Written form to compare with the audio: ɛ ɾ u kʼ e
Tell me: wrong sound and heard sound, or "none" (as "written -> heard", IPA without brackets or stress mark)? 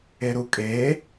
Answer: ɛ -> e